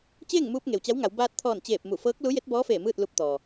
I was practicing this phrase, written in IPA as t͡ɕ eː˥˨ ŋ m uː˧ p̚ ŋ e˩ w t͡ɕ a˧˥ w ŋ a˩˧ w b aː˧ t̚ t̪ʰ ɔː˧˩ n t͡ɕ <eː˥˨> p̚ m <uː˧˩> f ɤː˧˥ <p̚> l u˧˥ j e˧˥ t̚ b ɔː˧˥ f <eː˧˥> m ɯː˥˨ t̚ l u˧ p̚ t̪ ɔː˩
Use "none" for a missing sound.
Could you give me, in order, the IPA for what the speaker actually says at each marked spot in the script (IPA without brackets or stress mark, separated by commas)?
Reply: eː˧˩, u˧˩, k̚, eː˧˩